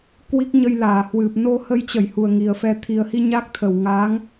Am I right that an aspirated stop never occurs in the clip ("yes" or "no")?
no